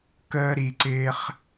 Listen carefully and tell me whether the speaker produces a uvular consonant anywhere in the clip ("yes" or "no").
yes